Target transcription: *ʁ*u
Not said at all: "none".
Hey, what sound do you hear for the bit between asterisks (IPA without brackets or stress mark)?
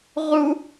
ʁ